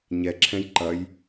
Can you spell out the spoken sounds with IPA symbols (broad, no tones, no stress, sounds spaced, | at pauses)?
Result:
ɲ ɛ ǁʰ ɛ̃ j ǃ ɐ j